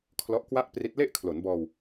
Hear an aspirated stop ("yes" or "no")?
yes